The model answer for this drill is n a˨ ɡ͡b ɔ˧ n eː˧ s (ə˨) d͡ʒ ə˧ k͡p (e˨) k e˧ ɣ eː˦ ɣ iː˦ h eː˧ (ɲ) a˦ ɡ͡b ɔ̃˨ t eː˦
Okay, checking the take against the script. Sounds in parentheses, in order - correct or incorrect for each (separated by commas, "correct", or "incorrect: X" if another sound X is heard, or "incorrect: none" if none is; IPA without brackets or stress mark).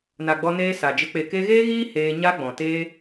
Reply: incorrect: a˨, correct, correct